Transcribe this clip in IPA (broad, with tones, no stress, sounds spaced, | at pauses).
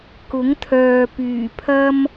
k ʊ˨˥ ŋ t̪ʰ œː˨ p yː˨˩ pʰ ɐ˥ m